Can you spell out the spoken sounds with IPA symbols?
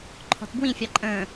ǃʰ ɔ̤ t b w ĩ fʲ ɑ ǃʼ ə̃ː

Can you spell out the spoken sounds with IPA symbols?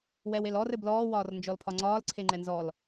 w ɛ w e l ɔ r ɘ b l ɔː w ɒː r n d͡ʒ ɔ l pʰ ɒ ŋ͡ǀ ɒː l ǀʰ e ŋ͡ǃ ɛ n z ɔ l

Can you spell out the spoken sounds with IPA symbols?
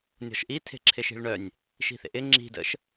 nʲ ɔ̤ ʃ ʔ i tʰ e̤ ǁʰ ɪ ʃ i̤ ɭ ɳ œ nʲ | ʃ i̤ θ ḛ ʔ ɪ ŋ͡ǁ i̤ d ə̰ ʃ

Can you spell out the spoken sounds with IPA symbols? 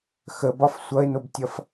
x ə b ɒ f sʷ ʌ e̯ n o b tʲ ʌ f

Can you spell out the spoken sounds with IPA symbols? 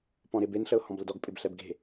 p ɔ̃ ɾ ɪ b e n ɬ ə ʊ̯ h ɔ̃ b l ə d ɔ ɡ pʼ ɪ b ɬ ɛ b ɡ e̤

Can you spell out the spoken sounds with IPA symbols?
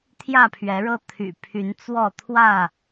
t̪ʰ j ä˥˨ pʰ ɥ ɛ˨˦ ɻ ɤ˦ t̪ʰ y̰˨˩ pʰ y˨˦ n t͡s w ɔ˥˨ t̪ʰ w ä˥˨

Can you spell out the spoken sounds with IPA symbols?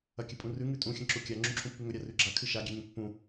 ɐ kʲ ɨ pʼ ũ r ʉ ŋ ʉ tʼ ũ xʲ ɐ̃ ǁ u kʲ a ŋ͡ǁ ũ ǁʰ ũ pː ʉ ŋ ɵ ɾʲ a r ʉ ɡ͡ǁ a kʰ ɨ ʃ a ɡʲ e ɲ ũ pː ũ

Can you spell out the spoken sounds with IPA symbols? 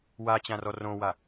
w a t͡ɕ ã r ɔ r õ w a

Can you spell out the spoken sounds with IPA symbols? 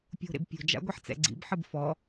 pʲ o̤ ɾ ḛ b pʲ o̤ d͡ʒ a̰ ɡʷ ɛ ħ t͡s ɛ̰ ɡ͡ǀ ḭ b ħ ɨ b f ɔ

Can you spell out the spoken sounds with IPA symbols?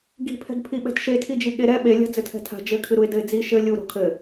ɡ i̤ pʰ ɛ̤ ɡ pʰ i ɓ ɛ̤ t ʃ e tʰ i d͡ʒ i ɠ e ɾ ɛ ɓ e lʲ a̤ d͡z ɘ tʰ ɛ̤ tʰ a̤ d͡ʒ ɘ kʰ ɨ ɾ u ɪ̯ d ɘ ɪ̯ d͡z i ʃ ɘ lʲ u ɾ o̤ kʰ ɘ

